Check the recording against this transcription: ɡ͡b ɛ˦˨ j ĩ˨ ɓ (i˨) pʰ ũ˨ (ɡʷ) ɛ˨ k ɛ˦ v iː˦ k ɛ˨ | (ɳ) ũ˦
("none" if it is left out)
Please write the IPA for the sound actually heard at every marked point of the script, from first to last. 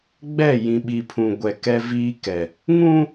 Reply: i˨, ɡʷ, ŋ

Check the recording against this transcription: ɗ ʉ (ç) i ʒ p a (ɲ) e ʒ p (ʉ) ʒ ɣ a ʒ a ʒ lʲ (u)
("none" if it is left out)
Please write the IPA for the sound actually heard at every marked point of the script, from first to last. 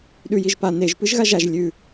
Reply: j, n, ɨ, ʉ

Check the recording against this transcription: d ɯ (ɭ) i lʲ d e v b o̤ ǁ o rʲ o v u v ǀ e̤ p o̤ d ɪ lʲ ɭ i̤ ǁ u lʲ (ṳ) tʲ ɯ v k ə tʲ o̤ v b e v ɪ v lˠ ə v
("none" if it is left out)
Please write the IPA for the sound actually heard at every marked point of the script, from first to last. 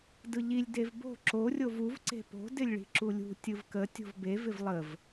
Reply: ʎ, ṳ

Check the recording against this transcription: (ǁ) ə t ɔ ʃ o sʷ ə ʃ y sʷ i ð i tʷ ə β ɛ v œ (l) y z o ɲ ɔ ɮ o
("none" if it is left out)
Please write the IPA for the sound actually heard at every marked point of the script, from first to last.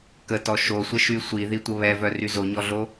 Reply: k, r

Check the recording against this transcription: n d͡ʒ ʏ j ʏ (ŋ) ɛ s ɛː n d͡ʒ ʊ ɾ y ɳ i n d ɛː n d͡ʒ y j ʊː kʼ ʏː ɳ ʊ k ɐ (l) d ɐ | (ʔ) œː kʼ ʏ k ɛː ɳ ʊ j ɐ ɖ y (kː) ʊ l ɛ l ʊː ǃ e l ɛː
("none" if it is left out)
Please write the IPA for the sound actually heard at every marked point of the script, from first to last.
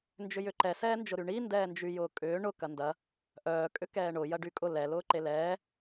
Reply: ǃ, n, ʔ, kʼ

